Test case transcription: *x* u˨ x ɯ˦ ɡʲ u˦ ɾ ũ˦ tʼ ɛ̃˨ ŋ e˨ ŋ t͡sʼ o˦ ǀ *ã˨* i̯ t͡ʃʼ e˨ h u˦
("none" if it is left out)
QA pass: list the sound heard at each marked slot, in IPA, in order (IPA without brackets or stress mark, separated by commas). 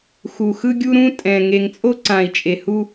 x, ã˨